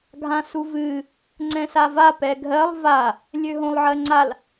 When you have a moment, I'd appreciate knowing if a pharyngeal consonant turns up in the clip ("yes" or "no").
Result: yes